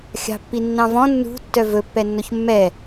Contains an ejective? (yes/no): no